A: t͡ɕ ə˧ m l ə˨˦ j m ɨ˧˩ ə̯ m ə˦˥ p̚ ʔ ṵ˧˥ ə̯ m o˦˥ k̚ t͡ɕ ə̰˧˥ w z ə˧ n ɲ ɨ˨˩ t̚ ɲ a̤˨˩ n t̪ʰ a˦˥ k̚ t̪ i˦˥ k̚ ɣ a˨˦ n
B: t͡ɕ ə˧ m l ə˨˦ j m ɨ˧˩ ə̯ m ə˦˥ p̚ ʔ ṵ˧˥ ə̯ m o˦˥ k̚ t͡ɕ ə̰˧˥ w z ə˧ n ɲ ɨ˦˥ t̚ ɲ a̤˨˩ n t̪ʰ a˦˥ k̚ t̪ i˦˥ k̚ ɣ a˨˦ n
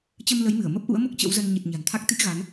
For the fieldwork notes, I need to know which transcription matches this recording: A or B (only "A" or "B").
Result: A